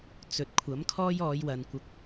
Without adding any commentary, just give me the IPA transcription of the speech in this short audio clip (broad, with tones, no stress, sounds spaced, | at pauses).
t͡s ɵ˨ t̚ kʷʰ ɐ˨˥ m kʰ ɔː˥ j ɔː˨˧ j w ɐ˨ n kʷ ɐ˧ k̚